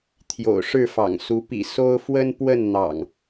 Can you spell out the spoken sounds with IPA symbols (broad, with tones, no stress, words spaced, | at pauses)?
t̪ʰjo̰˨˩ʊ̯ʂɻ̩˥˨fɑ̰˨˩ŋsu˨˦ pḭ˨˩so˦ʊ̯ fwə˦npwə˥˨nn̪ɑ̰˨˩ŋ